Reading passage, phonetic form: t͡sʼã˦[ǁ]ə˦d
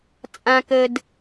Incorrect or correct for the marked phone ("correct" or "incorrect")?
incorrect